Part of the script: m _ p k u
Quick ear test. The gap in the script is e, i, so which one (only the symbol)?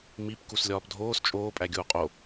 i